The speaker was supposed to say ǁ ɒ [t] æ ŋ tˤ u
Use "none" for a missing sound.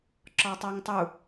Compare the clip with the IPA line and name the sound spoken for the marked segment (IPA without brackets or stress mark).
tˤ